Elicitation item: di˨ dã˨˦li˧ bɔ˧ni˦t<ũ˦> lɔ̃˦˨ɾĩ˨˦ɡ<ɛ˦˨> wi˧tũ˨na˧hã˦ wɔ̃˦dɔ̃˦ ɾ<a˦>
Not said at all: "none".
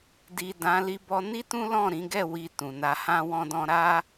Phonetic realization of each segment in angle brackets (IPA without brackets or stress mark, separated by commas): ũ˦, ɛ˦˨, a˦